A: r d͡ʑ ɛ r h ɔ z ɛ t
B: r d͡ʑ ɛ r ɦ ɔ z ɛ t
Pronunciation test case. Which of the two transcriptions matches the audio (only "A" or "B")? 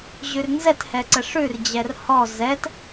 A